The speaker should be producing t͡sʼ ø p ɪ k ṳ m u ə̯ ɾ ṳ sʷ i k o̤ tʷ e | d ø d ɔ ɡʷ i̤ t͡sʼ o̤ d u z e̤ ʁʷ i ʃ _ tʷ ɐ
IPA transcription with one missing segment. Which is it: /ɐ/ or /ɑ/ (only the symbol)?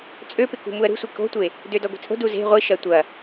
ɐ